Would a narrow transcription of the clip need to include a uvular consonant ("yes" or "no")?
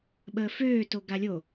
no